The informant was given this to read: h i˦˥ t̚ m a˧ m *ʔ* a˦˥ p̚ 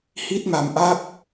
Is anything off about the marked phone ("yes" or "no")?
no